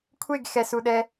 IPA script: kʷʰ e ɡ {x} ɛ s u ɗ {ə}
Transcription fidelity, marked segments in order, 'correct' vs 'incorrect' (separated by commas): correct, incorrect